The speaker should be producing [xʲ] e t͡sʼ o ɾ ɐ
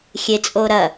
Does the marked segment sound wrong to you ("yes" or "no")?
no